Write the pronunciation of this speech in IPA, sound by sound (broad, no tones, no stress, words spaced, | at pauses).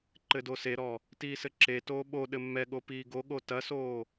ǃɘdoseɾɔ | tiːsɘǁe toːɓo ɗɘmːɛɠo piːɡoɠo tɐsoː